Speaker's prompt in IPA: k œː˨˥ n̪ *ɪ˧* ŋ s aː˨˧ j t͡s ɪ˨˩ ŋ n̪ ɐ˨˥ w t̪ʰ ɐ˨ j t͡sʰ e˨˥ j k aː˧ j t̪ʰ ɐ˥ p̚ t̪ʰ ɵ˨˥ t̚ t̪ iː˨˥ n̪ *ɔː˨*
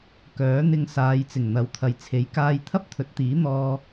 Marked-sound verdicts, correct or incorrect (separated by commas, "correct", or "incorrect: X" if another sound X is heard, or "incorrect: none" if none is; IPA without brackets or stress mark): correct, incorrect: ɔː˧